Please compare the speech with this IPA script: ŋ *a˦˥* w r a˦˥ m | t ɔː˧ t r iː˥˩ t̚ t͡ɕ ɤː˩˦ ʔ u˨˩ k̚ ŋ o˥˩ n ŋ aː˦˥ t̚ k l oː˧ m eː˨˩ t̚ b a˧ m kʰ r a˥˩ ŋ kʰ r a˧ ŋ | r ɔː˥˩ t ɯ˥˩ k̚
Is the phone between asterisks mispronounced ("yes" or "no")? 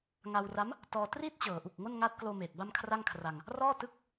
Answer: yes